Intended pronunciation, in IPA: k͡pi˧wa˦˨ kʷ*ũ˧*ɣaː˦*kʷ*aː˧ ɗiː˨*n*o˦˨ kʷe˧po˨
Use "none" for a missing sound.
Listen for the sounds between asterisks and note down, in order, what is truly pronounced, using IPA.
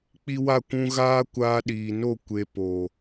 ũ˧, kʷ, n

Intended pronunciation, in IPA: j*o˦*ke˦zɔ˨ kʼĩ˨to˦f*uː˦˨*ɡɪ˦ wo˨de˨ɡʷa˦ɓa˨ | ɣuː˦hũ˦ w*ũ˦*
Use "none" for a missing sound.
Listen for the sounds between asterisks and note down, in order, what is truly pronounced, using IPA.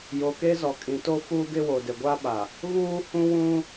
o˨, uː˦, ũ˦

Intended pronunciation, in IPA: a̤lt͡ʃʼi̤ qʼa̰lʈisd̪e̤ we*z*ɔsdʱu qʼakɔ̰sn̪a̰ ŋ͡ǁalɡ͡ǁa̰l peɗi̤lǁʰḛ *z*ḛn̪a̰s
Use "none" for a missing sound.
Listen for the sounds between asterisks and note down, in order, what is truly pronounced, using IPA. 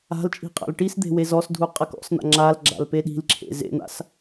z, z

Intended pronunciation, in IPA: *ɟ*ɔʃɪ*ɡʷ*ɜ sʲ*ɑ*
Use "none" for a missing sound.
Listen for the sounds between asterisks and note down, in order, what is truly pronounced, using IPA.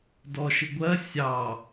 d, ɡʷ, ɑ

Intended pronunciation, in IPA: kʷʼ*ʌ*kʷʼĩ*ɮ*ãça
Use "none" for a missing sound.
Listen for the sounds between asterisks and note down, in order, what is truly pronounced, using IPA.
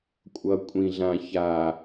ʌ, ɮ

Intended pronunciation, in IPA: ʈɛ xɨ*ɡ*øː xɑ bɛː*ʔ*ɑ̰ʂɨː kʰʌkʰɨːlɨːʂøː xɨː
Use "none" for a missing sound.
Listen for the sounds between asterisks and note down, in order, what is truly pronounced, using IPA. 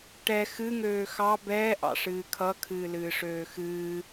ŋ, ʔ

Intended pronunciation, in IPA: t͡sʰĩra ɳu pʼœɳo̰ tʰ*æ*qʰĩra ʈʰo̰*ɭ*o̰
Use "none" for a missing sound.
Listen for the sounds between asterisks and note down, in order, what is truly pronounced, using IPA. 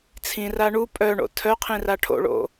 œ, ɭ

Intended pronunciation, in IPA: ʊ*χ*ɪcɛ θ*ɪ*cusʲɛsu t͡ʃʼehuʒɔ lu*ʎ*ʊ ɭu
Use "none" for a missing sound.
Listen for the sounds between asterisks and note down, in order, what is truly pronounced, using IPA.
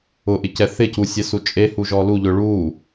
ʔ, ɪ, ʎ

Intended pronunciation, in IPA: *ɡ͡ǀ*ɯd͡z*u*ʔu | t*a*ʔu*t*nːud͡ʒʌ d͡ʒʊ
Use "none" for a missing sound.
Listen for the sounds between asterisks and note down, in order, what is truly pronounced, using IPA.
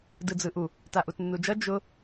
d, ɯ, a, t

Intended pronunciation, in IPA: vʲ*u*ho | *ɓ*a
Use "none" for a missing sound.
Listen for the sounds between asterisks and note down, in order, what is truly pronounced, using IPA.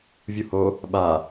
u, ɓ

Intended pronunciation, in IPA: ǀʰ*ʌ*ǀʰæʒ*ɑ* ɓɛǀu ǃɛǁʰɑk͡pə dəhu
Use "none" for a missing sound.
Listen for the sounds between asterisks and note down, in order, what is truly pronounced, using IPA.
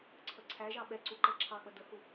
ʌ, ɑ

